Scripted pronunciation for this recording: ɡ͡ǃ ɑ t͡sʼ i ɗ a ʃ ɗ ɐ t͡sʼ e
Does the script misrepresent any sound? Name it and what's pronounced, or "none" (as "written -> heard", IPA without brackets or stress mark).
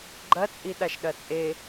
ɑ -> ɐ